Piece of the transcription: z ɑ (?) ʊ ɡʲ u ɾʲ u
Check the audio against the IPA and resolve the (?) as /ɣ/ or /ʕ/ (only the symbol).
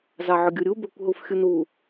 ʕ